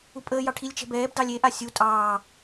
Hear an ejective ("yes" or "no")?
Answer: yes